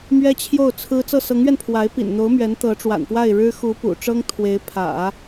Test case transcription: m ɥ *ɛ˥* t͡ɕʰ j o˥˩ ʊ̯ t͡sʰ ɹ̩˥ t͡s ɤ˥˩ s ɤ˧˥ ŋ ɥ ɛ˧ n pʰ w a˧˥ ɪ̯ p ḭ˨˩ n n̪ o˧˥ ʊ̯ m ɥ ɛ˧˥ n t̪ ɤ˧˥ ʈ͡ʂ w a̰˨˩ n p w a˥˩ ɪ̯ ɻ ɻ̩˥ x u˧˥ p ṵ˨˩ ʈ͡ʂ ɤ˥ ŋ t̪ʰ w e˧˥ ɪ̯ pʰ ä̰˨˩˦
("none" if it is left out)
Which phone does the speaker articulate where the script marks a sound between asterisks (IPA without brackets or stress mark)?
ɛ˥